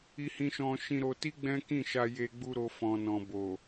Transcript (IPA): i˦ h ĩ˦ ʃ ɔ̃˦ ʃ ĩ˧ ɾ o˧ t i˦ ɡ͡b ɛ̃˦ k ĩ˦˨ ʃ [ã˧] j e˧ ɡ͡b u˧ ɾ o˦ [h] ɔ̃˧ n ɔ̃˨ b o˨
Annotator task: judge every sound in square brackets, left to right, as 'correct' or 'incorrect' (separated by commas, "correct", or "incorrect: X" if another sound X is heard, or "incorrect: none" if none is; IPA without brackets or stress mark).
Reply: incorrect: a˧, incorrect: f